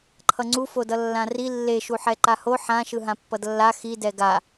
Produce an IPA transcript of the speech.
ǃʰ ʌ ŋ͡ǀ u f o d ʌ lː ã r i lː e ʃ u ħ ɛ ǃ a h o ħ ã ʃ ɯ ɦ ã pː ʌ d lː a x i d ɛ ɡ a

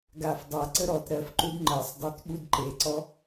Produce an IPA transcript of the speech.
ɡ a f dˤ a ǀ ə ɾ ɔ t ɾ ɜ f ǃ u d ŋ͡ǃ ɜ sˤ dˤ ɜ t ɓ u d ǃ e ǀ ɔ

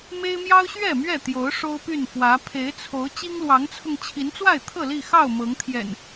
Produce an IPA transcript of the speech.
m e˦ ɪ̯ m j ɑ˦ ʊ̯ ɕ ɥ ɛ˥˨ m ɥ ɛ˥˨ t̪ j o˨˦ ʊ̯ ʂ o˦ ʊ̯ p y˥˨ n f w ä˨˦ pʰ e˨˦ ɪ̯ t͡sʰ o˨˦ ʊ̯ t͡ɕ i˦ ŋ l w ɑ˨˦ ŋ t͡sʰ ʊ˧ ŋ t͡ɕʰ i˨˦ n t͡s w a˥˨ ɪ̯ t̪ʰ ɤ˥˨ l i˥˨ x ɑ˥˨ ʊ̯ m ɤ˨˦ ŋ t̪ʰ j ɛ̰˨˩ n

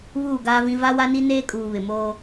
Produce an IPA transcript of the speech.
β uː˦˨ ɡ aː˦ v ĩ˦ v a˦ w a˦ n i˦ n eː˦ kʼ uː˨ β ɪ˨ m oː˦

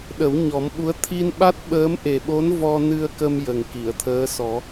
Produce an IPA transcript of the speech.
ɗ ə˨˩˦ w ɲ ɔ˨˩˦ m ɓ u˧˥ ə̯ t̪ʰ i˧ n ɓ a˦˥ t̚ ɓ əː˧˥ m ʔ e˨˩ ɓ o˧˥ n v ɔ˧ n ɨ˧ ə̯ k ə˧ m j ə˨˩ ŋ k i˨˩˨ ə̯ t̪ʰ əː˧˥ s ɔ˨˩˦

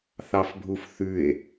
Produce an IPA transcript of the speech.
θ ɑ f bʱ u f θ ʉ e̯

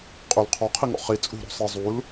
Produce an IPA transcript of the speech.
qʼ ø l qʰ ɔ qʰ i ŋ ɔ̰ χ i t͡sʼ ṳ ɾ ɔ̤ sˤ i zˤ u l

